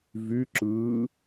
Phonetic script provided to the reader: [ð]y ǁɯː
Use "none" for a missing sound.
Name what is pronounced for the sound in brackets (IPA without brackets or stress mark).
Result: v